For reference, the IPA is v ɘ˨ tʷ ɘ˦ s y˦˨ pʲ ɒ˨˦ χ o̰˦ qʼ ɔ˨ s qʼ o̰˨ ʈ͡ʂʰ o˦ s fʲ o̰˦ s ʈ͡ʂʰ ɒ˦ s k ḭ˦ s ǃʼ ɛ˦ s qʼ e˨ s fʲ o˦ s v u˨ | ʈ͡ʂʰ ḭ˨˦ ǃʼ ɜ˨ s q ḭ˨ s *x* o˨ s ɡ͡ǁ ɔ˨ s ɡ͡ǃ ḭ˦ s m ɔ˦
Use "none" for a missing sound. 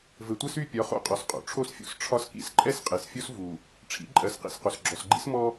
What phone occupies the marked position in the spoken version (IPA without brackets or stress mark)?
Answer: q